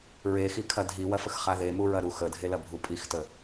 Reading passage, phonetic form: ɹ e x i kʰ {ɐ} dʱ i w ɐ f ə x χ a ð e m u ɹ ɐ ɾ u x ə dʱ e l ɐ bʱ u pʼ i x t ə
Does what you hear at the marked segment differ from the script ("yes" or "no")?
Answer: no